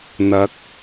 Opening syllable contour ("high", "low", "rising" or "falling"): rising